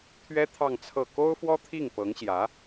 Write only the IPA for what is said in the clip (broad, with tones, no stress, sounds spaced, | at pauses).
t̪ʰ ɥ ɛ˥ t̪ʰ ɑ˥˧ ŋ t͡sʰ ɤ˥˩ k o˥ ʊ̯ f w ɔ˥ t̪ʰ i˥˩ ŋ p ɤ˧˥ ŋ ɕ j ä˧˥